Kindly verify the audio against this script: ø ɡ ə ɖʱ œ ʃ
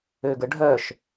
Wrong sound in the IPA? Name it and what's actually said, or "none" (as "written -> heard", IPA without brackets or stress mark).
none